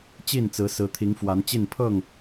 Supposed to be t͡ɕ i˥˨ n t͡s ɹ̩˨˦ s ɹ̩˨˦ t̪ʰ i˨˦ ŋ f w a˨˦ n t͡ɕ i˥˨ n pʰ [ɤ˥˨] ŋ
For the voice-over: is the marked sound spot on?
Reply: yes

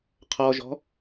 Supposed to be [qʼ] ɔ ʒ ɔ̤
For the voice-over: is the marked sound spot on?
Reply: no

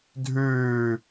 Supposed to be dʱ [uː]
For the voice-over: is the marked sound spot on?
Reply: no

